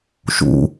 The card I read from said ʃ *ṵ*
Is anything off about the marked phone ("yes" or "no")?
no